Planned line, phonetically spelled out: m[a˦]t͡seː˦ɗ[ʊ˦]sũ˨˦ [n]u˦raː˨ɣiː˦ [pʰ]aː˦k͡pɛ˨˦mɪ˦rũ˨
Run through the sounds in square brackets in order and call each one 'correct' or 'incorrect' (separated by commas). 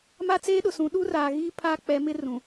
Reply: correct, incorrect, incorrect, correct